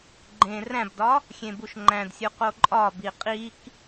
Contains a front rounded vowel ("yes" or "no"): no